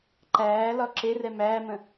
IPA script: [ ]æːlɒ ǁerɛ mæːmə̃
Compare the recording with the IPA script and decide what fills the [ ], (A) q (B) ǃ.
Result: B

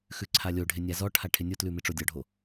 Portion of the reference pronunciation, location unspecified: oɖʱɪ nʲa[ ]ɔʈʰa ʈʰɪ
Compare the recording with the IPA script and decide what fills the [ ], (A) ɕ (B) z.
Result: B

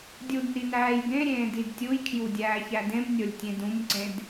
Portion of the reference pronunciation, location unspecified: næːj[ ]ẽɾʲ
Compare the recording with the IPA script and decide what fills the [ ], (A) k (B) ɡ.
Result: B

